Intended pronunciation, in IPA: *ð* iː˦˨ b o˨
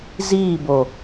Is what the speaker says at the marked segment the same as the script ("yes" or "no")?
no